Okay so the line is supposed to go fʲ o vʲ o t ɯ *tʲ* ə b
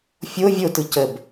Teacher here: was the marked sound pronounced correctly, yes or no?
no